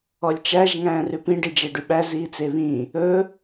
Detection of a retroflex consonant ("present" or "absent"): present